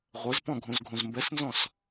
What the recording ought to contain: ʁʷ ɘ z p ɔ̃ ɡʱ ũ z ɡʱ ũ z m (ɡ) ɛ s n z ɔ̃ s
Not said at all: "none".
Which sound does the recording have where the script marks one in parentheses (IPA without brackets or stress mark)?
b